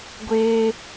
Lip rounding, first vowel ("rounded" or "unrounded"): unrounded